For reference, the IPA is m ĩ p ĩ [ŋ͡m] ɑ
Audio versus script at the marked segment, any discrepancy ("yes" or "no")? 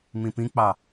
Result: yes